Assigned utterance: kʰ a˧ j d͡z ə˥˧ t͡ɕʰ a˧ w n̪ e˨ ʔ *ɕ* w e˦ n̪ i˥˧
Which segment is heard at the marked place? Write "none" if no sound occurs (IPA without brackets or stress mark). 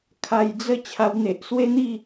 s